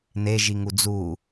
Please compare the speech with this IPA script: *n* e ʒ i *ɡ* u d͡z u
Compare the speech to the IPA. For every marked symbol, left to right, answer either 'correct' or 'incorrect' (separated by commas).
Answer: correct, incorrect